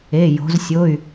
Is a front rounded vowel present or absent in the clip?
present